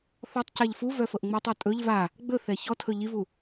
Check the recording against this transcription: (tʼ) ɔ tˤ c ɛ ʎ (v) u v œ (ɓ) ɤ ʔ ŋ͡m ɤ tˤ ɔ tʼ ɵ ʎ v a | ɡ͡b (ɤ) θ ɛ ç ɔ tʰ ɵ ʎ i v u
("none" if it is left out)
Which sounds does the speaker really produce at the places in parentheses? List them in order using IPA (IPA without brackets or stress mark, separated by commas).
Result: θ, f, f, ɵ